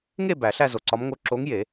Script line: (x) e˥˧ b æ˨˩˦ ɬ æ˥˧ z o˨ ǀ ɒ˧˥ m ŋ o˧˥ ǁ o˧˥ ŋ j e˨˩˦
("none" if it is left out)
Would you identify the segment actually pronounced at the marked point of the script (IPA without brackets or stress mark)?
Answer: ŋ